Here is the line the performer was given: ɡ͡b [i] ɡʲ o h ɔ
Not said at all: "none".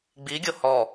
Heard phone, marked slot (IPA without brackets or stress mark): i